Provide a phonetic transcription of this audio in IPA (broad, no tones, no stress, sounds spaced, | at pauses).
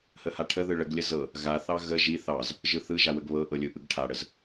h ə h a ʈʰ ə ð ɯ ɭ ə ɡ lʲ ə z ɤ | ɣ a θ ɑ ɣ ə ʒ i θ ɑ z | ʒ ɯ θ ɯ ʒ a w ə ɡ β ɤ ʔ ɤ lʲ ɯ ʔ ɯ ɡ ʈʰ a ɽ ə z